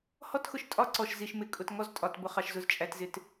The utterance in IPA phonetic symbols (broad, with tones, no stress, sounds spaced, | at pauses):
h ɔ˦ t x ʊ˨ ʃ tʼ ɒ˦ ǀ ɔ˨ ʃ z i˨ ʃ m ɪ˨ kʼ ʊ˨ t ŋ ɔ˦ z tʼ ɒ˨ t b ʊ˨ χ ɑ˨ ʃ z ʊ˨ z t͡ʃʼ æ˨ t z ɪ˨ t